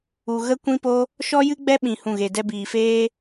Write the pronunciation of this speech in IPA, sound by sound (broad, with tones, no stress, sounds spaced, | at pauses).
u˨ ɣ ə˦ kʷ ĩ˦ p o˦ | ʃ ɔ˦ j ɨ˦ ɡ͡b ɛ˦ ɓ ĩ˧ h ũ˦˨ ɣ e˧ d ɛ˧ b iː˨ f eː˦